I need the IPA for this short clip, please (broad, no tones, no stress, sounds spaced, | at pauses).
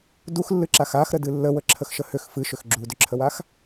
d u x lː ɨ ǁ a x a x ɾ ə d ɨ lː ə w ə ǁʰ ə x ʃ ə h ʏ x f ɨ ʃ ʏ x ɡ͡ǁ u d ʏ ǁʰ ə w a x